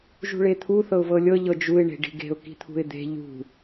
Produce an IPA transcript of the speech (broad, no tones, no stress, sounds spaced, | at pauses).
ʒ ṳ ɭ e t̪ʰ u θ ɤ ʊ̯ v ɤ lʲ ɤ ʎ ɤ d͡ʒ u ɪ̯ ɳ e̤ ɖ i̤ ɡ e̤ ʊ̯ k i̤ t̪ʰ ṳ ɪ̯ d̪ e̤ ʎ ṳ